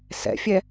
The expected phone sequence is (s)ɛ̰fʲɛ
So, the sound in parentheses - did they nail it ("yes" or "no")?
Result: yes